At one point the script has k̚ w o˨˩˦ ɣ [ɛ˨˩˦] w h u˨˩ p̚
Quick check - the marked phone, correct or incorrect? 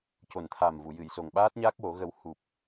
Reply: incorrect